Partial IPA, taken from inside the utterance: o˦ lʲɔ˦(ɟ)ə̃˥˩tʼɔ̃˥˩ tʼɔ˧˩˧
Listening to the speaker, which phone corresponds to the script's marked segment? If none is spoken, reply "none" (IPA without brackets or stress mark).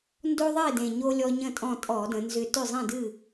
ɲ